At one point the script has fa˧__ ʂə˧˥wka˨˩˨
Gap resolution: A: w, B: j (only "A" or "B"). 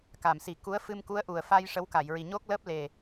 B